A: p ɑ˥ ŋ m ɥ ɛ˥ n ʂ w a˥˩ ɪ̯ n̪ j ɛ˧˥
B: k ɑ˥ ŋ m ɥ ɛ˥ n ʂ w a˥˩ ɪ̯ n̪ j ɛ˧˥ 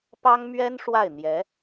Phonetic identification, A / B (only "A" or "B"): A